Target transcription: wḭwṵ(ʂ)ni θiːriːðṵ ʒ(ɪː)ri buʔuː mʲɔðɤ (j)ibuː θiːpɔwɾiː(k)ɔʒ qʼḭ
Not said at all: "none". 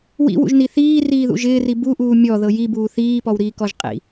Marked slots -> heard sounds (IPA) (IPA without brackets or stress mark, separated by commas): ʒ, ɪː, j, k